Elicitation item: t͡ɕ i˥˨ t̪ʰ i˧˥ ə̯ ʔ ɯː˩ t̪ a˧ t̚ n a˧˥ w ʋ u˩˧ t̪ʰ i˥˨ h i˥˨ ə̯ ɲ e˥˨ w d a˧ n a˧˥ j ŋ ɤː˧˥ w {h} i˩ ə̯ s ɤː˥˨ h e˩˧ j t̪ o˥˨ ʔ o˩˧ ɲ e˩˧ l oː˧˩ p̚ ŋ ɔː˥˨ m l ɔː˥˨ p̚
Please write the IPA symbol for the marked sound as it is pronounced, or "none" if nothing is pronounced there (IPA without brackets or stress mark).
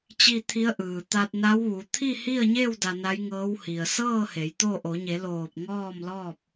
h